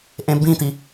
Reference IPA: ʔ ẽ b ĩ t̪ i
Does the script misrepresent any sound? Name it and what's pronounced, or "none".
none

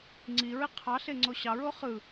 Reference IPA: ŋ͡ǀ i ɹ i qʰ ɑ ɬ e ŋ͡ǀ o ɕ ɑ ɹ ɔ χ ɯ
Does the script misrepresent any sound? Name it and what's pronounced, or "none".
ɔ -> o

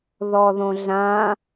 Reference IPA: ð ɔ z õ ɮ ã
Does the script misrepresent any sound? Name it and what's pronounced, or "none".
z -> ð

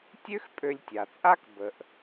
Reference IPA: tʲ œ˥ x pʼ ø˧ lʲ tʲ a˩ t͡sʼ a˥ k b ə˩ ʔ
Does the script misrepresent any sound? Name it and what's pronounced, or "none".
œ˥ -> ø˥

